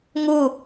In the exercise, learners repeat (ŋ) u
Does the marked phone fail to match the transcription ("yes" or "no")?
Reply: no